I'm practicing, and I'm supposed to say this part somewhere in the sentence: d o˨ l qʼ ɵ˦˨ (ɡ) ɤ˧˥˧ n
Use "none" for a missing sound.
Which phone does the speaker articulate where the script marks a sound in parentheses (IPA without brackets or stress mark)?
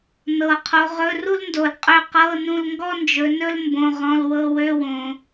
q